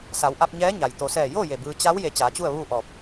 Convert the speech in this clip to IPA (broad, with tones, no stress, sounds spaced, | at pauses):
s a˩˧ w ʔ a˧ p̚ ɲ ɛː˧˥ ɲ a˩ j t̪ o˩ s ɛː˧˩ j o˥˨ j e˧˩ b ɯː˧ t͡ɕ a˧˥ w j e˧ t͡ɕ aː˩˧ t͡ɕ u˥˨ ə̯ ʋ uː˥˨ ʔ ɔː˧˩ p̚